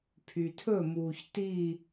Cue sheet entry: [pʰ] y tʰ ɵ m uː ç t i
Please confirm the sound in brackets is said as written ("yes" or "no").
yes